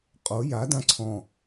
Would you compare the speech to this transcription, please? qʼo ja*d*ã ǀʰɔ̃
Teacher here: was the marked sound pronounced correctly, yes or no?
yes